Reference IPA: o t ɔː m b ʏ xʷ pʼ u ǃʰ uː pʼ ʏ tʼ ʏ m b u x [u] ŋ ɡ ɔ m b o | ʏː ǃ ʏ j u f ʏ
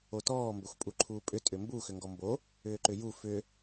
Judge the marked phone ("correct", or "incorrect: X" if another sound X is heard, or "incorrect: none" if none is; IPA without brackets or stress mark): incorrect: ʏ